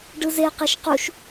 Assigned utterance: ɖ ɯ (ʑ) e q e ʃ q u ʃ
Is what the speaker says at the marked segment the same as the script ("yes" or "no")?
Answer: no